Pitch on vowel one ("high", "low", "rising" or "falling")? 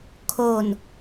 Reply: low